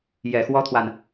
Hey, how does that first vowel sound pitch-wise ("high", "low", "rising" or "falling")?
low